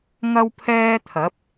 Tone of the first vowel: high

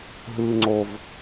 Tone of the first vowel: low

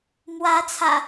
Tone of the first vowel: rising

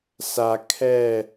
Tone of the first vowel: low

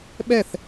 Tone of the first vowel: falling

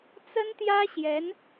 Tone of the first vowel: high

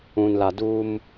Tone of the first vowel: low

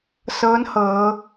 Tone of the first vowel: rising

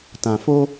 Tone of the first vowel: low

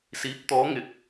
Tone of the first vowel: rising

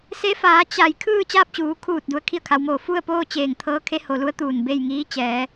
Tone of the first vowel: rising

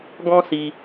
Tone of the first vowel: high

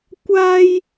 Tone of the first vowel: high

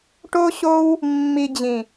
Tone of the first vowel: high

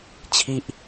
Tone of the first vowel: falling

